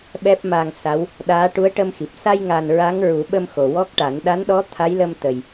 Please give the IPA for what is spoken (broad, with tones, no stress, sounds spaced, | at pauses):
ɓ ɛ˦˥ p̚ m a˧ ŋ s a˧˥ w | ɗ aː˧˥ ʈ u˧˥ ə̯ ʈ ə˧ m x i˨˩ p̚ s a˧ j ŋ a˨˩ n ɹ a˧˥ ŋ ɹ u˨˩˦ ɓ ə˧ m x o˨˩ w ɔ˦˥ k̚ ʈ a˨˩˦ n ɗ a˧˥ n ɗ ɔ˧˥ t̪ʰ a˧˥ j l ə˧ m t̪ ə˨˩ j